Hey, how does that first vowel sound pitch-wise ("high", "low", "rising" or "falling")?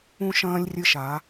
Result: high